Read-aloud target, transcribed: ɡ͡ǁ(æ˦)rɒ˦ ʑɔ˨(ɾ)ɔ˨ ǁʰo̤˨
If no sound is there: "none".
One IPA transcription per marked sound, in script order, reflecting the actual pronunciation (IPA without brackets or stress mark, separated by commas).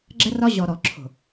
ɛ˦, ɾ